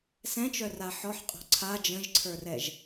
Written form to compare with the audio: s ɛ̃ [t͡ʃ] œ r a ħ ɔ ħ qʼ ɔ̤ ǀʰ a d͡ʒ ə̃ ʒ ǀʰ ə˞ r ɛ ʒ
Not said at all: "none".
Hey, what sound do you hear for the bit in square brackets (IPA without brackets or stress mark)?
t͡ʃ